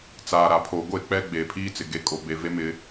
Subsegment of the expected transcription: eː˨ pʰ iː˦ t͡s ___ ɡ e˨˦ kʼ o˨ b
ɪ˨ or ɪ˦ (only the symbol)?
ɪ˨